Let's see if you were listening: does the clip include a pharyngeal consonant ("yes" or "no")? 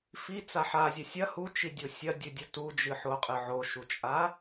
yes